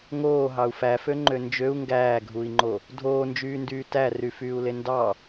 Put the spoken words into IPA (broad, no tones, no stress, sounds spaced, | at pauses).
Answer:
ŋ oː ɦ ɑ u̯ f æ f ø ŋ͡ǃ ø n d͡ʒ ø u̯ ŋ ɡ æː ɡʱ u i̯ ŋ͡ǃ o | dʱ oː n d͡ʒ yː n d yː t æ r y f yː u̯ l e n d ɑ